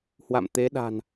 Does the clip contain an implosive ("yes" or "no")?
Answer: yes